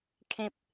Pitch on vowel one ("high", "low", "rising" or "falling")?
low